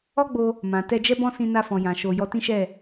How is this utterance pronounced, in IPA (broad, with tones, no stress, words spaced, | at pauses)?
ɔ˦ɡ͡bo˧ | mã˨ tɛ˧d͡ʒɛ˦bɔ̃˦ sĩ˧na˧fɔ̃˨ jã˨ʃo˧ jɔ˧tĩ˦ʃɛ˦˨